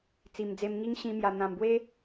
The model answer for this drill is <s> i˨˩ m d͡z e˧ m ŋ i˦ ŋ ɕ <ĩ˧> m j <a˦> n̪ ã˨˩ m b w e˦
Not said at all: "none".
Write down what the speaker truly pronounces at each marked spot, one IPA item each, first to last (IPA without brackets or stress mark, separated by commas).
t͡s, ĩ˧, a˨˩